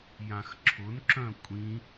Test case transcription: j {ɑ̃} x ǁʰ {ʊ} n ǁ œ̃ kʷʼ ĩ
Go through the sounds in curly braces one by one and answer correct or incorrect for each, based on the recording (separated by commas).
incorrect, correct